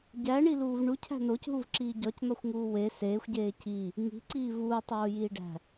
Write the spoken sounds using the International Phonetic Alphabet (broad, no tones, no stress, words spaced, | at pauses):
ɟæɳiluːv ɳucʰæ̤ nocɦuvǁiː ɟɒcn̪ɒxʷŋuː we seːxʷɟeː ci | ŋi̤ǀiː vuːtˤoːjiːɖæ̤